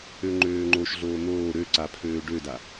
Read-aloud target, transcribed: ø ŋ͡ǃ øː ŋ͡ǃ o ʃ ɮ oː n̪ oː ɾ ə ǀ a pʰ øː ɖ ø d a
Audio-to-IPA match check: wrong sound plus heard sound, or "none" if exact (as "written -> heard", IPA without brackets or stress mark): ə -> ø